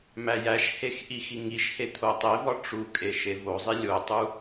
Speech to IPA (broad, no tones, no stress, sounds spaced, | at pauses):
m æ j æ ʃ h e x ʔ i x i ŋ i ʃ h e t̪ʰ o tˤ e v ɒ ʈ͡ʂ u kʼ e ʃ e v o zˤ i lʲ o tˤ u